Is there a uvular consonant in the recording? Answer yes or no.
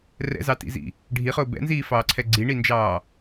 yes